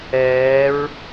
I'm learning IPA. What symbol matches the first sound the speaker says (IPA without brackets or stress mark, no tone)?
ɛː